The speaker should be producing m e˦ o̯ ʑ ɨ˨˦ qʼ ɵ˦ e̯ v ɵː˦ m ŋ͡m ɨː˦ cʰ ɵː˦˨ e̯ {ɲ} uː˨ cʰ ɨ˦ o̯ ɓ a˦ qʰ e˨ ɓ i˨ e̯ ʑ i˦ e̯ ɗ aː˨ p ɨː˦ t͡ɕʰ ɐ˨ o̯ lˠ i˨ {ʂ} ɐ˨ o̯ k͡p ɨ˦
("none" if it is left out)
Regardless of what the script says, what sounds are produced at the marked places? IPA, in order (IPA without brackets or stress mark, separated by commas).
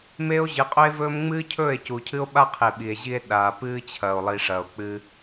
c, ʂ